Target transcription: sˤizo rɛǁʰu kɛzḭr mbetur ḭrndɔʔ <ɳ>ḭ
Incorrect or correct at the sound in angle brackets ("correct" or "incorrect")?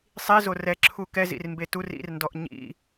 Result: incorrect